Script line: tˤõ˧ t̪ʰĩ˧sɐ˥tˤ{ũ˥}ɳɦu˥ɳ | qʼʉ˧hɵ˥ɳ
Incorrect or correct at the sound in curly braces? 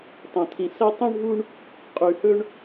correct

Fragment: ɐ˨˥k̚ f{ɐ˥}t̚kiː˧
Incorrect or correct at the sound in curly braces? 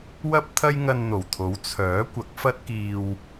correct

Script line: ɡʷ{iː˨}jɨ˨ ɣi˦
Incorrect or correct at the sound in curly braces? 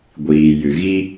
correct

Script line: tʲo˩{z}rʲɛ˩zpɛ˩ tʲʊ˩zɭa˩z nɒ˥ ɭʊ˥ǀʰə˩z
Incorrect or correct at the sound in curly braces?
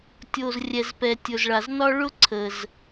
correct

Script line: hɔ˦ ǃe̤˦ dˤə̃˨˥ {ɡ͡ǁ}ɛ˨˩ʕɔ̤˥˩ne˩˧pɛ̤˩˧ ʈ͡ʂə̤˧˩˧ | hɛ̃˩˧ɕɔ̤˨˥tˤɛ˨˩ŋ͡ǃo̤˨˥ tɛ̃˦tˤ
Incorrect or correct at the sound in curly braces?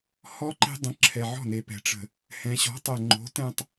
incorrect: ǁʰ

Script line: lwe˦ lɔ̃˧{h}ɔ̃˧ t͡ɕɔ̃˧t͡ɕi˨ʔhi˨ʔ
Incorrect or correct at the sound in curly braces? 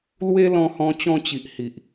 correct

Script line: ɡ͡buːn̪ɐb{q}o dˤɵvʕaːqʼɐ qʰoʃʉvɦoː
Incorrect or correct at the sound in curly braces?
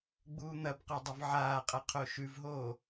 correct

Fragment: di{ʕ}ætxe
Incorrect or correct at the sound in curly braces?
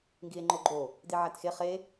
correct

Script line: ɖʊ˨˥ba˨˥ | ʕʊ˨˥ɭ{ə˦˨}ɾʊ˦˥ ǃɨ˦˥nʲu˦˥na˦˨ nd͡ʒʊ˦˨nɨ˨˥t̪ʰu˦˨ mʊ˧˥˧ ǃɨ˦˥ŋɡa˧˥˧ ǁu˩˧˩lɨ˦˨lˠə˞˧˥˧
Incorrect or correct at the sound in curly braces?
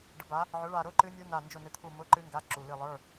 incorrect: a˦˨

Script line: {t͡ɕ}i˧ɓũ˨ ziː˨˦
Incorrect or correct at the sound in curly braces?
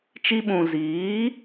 incorrect: t͡ʃ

